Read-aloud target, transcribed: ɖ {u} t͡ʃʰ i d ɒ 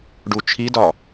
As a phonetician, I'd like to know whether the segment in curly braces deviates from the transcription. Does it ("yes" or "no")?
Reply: no